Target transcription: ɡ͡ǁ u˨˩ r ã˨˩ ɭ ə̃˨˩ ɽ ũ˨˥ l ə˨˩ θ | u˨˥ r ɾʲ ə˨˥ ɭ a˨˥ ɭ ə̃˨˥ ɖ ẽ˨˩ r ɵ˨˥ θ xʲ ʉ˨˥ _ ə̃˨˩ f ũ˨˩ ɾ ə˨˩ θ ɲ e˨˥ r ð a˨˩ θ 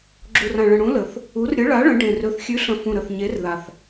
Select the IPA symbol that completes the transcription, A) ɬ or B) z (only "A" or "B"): A